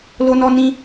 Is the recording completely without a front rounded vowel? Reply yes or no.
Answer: yes